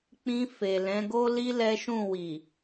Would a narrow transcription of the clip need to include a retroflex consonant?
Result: no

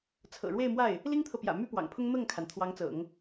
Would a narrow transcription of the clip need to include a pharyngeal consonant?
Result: no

